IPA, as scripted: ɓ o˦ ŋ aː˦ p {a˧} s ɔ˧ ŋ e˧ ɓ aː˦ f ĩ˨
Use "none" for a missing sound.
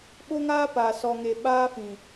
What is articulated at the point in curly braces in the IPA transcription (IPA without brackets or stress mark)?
a˨